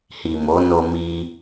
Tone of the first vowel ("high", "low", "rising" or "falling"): low